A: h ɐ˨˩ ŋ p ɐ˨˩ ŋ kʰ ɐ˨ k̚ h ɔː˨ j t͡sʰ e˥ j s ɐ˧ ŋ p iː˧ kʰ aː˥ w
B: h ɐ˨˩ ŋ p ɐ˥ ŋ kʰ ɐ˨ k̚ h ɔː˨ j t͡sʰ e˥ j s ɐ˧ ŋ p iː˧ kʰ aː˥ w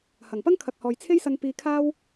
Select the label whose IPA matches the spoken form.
B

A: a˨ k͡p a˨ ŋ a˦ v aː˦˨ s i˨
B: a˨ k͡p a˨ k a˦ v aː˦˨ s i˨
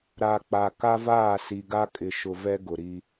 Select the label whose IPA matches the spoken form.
B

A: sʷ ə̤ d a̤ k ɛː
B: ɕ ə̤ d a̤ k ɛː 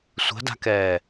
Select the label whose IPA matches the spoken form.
A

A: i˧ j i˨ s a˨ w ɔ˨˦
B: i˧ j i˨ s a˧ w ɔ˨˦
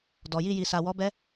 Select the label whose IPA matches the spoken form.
A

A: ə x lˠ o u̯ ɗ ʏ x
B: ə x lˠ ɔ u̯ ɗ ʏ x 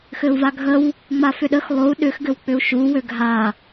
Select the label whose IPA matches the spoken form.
A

